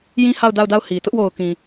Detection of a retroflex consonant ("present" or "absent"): absent